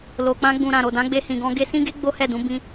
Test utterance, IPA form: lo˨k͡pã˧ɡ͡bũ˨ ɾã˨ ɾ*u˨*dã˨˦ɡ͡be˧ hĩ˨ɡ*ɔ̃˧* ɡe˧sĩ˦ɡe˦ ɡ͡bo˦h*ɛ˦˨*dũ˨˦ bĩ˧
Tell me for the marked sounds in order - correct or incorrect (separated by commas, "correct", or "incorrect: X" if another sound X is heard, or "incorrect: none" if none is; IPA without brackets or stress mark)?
incorrect: o˨, correct, correct